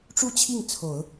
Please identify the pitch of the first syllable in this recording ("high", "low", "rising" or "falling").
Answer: falling